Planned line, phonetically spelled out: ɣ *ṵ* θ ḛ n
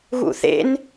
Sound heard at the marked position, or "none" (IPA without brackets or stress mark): ṵ